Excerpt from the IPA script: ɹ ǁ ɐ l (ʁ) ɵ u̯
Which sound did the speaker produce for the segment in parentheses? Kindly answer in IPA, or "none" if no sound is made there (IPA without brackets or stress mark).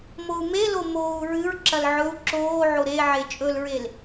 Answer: ʕ